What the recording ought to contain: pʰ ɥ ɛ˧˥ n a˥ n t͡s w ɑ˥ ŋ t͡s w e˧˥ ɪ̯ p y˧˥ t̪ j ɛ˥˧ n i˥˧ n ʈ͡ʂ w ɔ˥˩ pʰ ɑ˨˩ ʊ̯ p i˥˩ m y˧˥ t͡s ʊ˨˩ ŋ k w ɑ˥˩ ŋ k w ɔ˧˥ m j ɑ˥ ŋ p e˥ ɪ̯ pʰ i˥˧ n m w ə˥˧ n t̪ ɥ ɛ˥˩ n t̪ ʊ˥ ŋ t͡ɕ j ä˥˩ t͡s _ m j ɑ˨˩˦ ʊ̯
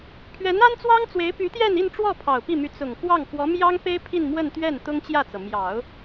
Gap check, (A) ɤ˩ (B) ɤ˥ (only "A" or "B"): A